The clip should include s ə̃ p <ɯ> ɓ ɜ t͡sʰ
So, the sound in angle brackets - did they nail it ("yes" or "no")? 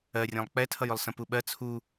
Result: no